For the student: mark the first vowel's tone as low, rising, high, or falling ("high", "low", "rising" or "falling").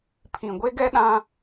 low